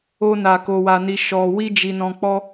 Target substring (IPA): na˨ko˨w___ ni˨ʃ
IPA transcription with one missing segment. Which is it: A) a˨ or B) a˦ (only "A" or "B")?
A